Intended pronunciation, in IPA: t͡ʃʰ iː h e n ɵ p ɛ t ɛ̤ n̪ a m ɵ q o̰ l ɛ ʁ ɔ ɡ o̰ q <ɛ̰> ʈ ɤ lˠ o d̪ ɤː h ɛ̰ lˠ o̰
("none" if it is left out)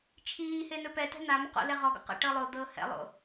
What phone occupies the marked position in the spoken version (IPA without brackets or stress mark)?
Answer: ɛ̰